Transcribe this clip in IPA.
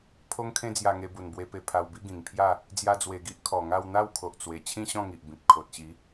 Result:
pʰ o˧ ŋ kʰ ẽ˧ d͡z j a˨˩ ŋ e˧ b u˨˩ n b w e˧ p e˧ pʰ a˧ w b i˦ ɡ ĩ˨˩ ŋ pʰ j a˥˧ | d͡z j a˧ d͡z w e˨˩ ɡ i˦ ʔ kʰ ɔ˨˩ ŋ a˥˧ w n̪ a˥˧ w kʰ o˨ ʔ t͡s w e˨˩ t͡ɕʰ ĩ˥˧ ɕ ɔ̃˥˧ ŋ i˨ ʔ b ĩ˨ p̚ kʰ o˨ t̚ ɕ i˨˦

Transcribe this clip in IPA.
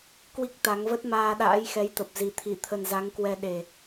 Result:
k w i˦˥ k̚ t̪ a˨˦ ŋ v ə˦˥ t̚ m aː˧ ɗ a̰ː˧˥ j x ɛ˨˦ j t̪ ə˨˩ p̚ z i˨˩ t̪ʰ i˧˩ t̪ʰ ə˨˩ n z a˨˦ ŋ k w ɛ˧ ɗ e˨˩

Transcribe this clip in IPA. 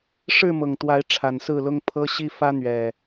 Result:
ʂ ɻ̩˥˨ m ɤ˨˩ ŋ t̪ w a˨˦ ɪ̯ ʈ͡ʂʰ a˨˩ n s ɹ̩˥˨ l ʊ˦ ŋ pʰ ɤ˦ ɕ i˦ f ä˦ n̪ ɥ ɛ˨˩

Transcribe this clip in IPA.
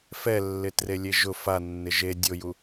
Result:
f ɛ lː ɪ t r e lʲ e ʒ ʊ f a nː ɪ ʒ e dʲ o j u

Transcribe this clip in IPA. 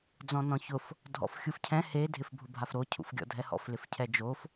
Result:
d͡z ɔ̃ n ɔ̃ ç ʊ f | dʱ ɔ̰ f xʲ u f cʰ ɛ̃ h e dʱ ɪ f bʱ ʊ bʱ a f ɾ o cʰ ṵ f ɡʲ ɔ̰ dʱ ɛ h ɔ̰ f l ɪ f cʰ ɛ d͡ʒ o f

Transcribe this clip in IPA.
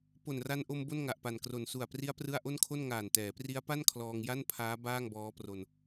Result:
p o˨˩ n r a˧ n ʔ o˧ m b o˥˩ n ŋ a˨˩ ʔ p a˨˩ n k r o˨˩ n s u˨˩ a̯ p r i˦˥ a̯ p r ɯ˥˩ a̯ ʔ o˥˩ n kʰ o˥˩ n ŋ aː˨˩ n t ɛː˩˦ p r i˦˥ a̯ p a˥˩ n kʰ l ɔː˧ ŋ j a˥˩ n pʰ aː˦˥ b aː˥˩ ŋ b ɔː˦˥ p r o˧ n

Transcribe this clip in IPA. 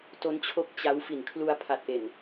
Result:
t o˦˥ n t͡ɕʰ o˦˥ k̚ t͡ɕ a˦˥ w f i˨˩ n kʰ l u˧ a̯ pʰ a˨˩ t̚ ʔ e˨˩ n

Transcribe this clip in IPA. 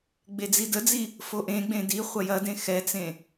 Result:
ɡ͡b e d͡z i d ə d͡z i | f o ʔ ẽ ɡ͡b ẽ d i χʷ ɐ j ɐ d ẽ x ɛ t͡s ẽ

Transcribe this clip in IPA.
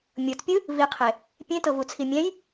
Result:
mʲ ɤ t pʲ ɯ | v i qʰ e | pʲ ẽ t ɤ v u t͡sʰ i mʲ ɛ̃ j

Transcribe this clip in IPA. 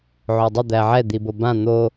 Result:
ʕ o dˤ ə d̪ æ ʕ ɛ d̪ i b o b ã n̪ o

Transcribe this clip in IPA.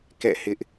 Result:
k ɛ̰˦˨ h ɪ˦ ʔ

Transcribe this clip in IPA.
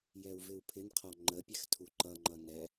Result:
j ɛ u̯ v ɪ u̯ pʰ ɪ n qʰ ɔ ŋ͡ǃ ə pʲ ɛ x tʰ u ǃ ʌ ŋ͡ǃ ʌ n ɛ

